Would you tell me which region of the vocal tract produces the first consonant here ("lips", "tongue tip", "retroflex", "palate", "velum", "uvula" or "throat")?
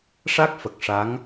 retroflex